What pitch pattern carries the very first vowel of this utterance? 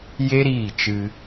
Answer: high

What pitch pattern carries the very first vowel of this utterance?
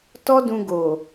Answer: high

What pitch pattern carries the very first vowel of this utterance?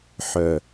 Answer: low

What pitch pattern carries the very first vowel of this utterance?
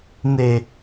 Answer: low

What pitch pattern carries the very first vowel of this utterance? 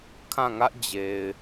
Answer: falling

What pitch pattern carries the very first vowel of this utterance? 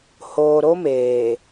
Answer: low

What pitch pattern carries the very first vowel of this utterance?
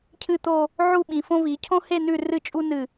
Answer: falling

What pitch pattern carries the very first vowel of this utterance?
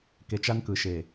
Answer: low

